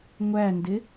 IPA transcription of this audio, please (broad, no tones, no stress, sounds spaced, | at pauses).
ŋʷ æ n d ɪ